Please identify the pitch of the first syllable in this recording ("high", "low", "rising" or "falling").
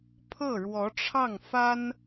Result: falling